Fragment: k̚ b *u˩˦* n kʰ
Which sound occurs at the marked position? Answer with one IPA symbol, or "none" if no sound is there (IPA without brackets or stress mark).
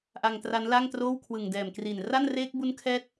u˦˥